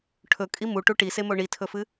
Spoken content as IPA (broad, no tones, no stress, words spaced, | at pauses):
ʈʰɵkʼi muʈu ʈisemo ɳitʰɵfɨ